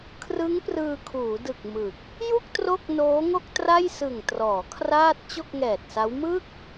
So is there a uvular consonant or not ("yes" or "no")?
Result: no